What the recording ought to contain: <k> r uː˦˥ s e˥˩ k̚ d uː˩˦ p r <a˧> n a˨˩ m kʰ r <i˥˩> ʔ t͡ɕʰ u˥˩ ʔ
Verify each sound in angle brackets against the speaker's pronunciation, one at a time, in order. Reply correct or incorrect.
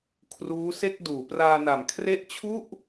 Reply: incorrect, incorrect, incorrect

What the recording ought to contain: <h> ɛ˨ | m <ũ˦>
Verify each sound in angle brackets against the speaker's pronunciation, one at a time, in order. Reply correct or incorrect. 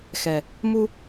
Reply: incorrect, incorrect

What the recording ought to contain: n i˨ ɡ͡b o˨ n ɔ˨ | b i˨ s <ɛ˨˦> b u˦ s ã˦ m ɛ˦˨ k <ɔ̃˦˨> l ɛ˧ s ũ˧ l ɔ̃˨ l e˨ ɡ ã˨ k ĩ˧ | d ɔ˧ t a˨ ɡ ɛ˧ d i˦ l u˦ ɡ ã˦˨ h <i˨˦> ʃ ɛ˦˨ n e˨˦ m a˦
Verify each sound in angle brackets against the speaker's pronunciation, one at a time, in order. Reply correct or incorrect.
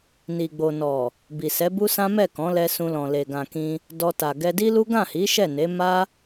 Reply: correct, incorrect, correct

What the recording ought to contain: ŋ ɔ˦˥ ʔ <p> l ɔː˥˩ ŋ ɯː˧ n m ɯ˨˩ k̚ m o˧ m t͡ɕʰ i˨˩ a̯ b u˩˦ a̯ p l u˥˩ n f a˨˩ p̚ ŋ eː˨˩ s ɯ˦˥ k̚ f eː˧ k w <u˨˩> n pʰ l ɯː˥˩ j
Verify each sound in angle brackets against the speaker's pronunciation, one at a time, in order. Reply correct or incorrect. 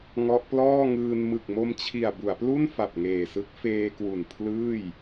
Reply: correct, correct

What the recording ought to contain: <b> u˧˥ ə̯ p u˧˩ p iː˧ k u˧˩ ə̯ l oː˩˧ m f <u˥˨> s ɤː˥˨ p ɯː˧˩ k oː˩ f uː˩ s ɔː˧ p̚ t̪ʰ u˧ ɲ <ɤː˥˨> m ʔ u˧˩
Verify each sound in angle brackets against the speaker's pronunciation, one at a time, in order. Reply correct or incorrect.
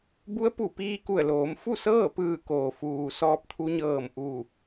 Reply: correct, correct, incorrect

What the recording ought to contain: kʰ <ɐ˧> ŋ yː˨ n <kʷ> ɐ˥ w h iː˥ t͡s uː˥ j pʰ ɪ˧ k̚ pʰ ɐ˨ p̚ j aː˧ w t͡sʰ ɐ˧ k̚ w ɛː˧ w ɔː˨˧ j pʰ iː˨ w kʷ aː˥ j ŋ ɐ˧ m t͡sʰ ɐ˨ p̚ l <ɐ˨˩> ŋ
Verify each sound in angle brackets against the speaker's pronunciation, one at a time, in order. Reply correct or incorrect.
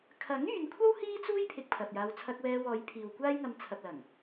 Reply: incorrect, incorrect, correct

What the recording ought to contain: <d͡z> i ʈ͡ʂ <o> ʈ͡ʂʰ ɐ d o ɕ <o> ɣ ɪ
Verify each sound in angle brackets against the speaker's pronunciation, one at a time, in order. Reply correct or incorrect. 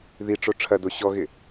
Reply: incorrect, correct, incorrect

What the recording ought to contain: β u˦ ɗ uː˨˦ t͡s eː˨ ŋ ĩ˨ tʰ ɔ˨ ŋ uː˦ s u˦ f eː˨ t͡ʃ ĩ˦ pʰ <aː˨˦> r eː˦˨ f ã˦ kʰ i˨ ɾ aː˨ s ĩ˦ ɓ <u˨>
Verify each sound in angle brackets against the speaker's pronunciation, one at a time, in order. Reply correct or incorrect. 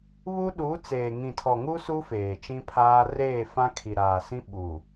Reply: incorrect, correct

